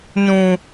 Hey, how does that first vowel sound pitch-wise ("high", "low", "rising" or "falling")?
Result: high